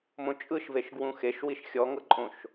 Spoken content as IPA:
m õ t͡ʃʼ ɯ ʃ v e ʃ ɡ w ũ x e ʃ w i ʃ xʲ ɔ ŋ ɤ ǃʼ õ ʃ

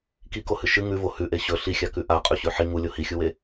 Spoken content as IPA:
k i k o h ɨ ʃ ɨ ŋ ʉ v o h ʉ ʔ e ɕ ɵ ɬ i xʲ a k ʉ ʔ a qʼ ʉ ɕ ʉ ħ i ŋ u lʲ o h i xʲ u w e

